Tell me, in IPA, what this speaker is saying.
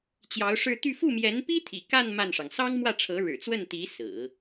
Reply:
t͡ɕjɑ˧˥ʊ̯ʂɻ̩˥˧ t̪y˥˧ fu˥˩mjɛ˧˥npi˥t̪ʰḭ˨˩ ka˥˧n ma˥˩nʂɑ˩ŋ sɑ˥ŋmwä˥˩ʈ͡ʂʰɤ˧˥ ɻɻ̩˨˩t͡swə˥˩nt̪i˧˥ sɹ̩˨˩˦

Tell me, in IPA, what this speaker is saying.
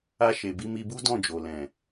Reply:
a˧ʃe˨ bi˧mi˧ bu˦dɔ̃˦˨d͡ʒo˨lɛ̃˨

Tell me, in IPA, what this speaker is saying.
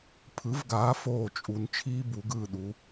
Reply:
pʰɯ˩˥vɡaː˩˥ foː˥˩t͡ʃʼu˧n t͡ʃʰiː˥ bu˩˥ɡɯː˥˩ɗu˩˥

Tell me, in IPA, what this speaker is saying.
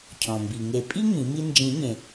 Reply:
cʰɔ̃˩mbi˩ŋe˨˩˦pʼi˥ ŋĩ˨˩˦mi˥ nd͡ʒĩ˨˩˦ɲẽ˩

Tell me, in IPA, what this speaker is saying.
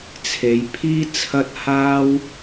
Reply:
t͡sʰe˨˧jpʰiː˥ t͡sʰɐ˥t̚ haː˥w

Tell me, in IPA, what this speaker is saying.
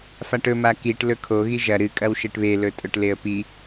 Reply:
faʈɵ makiʈ lɵkʰo ɣiʒɐ ɾɨ kʼɐwʃeʈβe lɵtʼɵʈleə̯pi

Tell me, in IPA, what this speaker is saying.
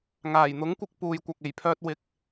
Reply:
ŋaː˨˩jn̪ʊ˨˥ŋkʷɪ˧k̚ puː˨jkʷɐ˨k̚e˨˩jpʰœː˧t̚ wɪ˨˥k̚

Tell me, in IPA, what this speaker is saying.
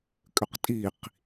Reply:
kʼʏqtʼiq

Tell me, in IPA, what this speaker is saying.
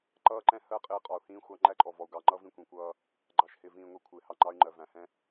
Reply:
ǃʌː˦ǃɛ̃˦ hɜ˦˨qʼɪː˦ qʼɒ˨u̯hĩː˦xʷɑ˦ ŋ͡ǃæ˦ǃʼɔ˨vɔ˨u̯ ɡɑ˨ŋ͡ǃʌ˦ vĩ˦kʷĩ˨kʷʌː˦ | ɡ͡ǃɑ˨ʃhɪː˨vĩː˨ ŋʷɛ˦kʷʰɪː˨hɑ˦ ŋ͡ǃɑ˦y̯ŋ͡ǃɜ˨væ̃˨ hɛ̃˦

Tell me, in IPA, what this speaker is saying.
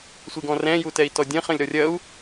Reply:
sʷiɡɔ̃rɛ̃ː jutɛi̯tɔdʲɐ̃ χɐ̃lʲɾɔrʲɐu̯

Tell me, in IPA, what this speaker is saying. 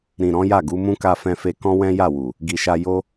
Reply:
ɾĩ˨ ɾɔ̃˨˦ja˦˨ɡu˨˦mũ˦ ka˧fɛ̃˧ fe˧ kɔ̃˦wɛ̃˦ ja˦˨wu˨ | ɡi˨ʃa˧ jo˦

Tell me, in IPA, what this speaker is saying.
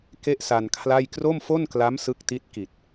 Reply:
ke˥˩ʔsa˧nkʰla˥˩j kro˥˩mfo˥˩nkla˦˥m sɯ˦˥k̚ti˦˥t̚ ki˨˩t̚

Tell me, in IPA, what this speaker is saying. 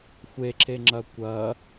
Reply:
xʷeǁeŋ͡ǁɐ kʷɐ

